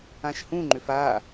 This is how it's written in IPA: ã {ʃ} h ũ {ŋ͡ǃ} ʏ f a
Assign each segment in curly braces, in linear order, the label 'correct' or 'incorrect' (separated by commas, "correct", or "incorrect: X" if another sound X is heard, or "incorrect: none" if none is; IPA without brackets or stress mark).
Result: correct, correct